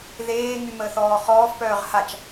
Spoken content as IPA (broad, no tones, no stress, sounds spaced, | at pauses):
ð eː ŋ y m əː θ ɔː χ ɔː f p œː ʁ h a t͡ʃ